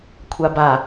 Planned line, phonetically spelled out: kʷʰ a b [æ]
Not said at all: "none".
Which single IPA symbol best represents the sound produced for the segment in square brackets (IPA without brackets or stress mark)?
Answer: a